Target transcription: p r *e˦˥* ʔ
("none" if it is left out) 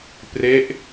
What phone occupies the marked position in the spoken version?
e˦˥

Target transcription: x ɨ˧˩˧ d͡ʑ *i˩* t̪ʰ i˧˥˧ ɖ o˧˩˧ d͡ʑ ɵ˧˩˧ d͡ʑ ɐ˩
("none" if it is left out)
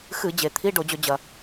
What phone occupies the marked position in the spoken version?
e˩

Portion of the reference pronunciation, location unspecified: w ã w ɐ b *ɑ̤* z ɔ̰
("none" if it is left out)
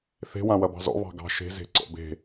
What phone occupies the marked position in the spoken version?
ɑ̤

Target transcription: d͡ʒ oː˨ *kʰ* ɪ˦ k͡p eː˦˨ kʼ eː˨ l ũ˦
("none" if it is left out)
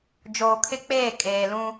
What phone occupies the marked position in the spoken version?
kʰ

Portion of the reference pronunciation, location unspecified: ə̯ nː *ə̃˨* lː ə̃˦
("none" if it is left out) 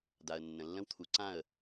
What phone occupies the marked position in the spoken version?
ə̃˨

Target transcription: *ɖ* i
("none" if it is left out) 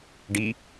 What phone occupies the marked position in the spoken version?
ɖ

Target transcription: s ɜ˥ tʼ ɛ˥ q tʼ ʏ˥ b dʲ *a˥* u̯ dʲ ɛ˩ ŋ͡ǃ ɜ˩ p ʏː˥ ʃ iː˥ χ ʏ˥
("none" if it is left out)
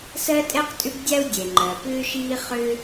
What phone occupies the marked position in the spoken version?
a˥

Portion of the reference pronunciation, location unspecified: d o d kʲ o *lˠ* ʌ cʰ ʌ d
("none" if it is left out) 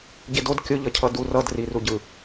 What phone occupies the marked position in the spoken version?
ʎ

